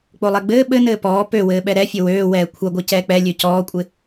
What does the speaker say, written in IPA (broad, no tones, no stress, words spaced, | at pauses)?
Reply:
k͡polˠɛɡ͡bɘː ɓɘnɘː pɔː pøwɘːɓɛ ɾɛfʲɘ wøː wɛːkʷʰɐɡʷɘ cɛːk͡pɛ lʲøcɔːkʷʼɪ